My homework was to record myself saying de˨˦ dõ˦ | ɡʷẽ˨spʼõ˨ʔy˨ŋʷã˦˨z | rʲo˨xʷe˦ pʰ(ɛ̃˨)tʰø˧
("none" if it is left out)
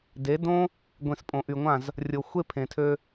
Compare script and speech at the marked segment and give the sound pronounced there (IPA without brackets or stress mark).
ẽ˨